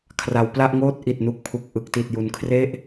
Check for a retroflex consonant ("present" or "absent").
absent